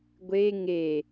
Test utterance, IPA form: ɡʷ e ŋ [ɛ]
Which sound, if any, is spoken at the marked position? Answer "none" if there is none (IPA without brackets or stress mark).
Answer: e